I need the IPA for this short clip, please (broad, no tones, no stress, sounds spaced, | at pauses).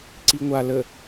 ǀ i ŋʷ a l ə